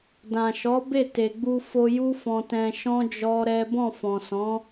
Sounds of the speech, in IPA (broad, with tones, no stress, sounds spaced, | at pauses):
d ã˨ ʃ ɔ˨˦ b e˦˨ t e˨ ɡ͡b u˧ f o˧ j u˦ f ɔ̃˧ t ɛ̃˧ ʃ ɔ̃˦ d͡ʒ ɔ˦ ɾ ɛ˦ b ɔ̃˦˨ f ɔ̃˨ s ɔ̃˨˦